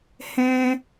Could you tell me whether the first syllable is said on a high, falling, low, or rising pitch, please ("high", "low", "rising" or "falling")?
high